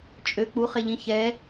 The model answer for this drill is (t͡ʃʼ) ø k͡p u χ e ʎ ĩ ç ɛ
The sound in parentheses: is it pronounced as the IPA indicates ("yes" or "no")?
yes